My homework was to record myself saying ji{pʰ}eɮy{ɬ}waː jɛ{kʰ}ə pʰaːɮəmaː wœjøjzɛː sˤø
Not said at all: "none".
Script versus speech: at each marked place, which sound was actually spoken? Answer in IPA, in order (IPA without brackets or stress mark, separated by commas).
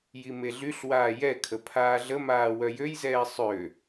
m, ɬ, kʰ